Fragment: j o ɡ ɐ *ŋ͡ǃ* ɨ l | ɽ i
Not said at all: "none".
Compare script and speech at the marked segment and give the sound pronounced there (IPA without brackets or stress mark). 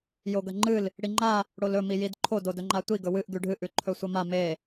ŋ͡ǃ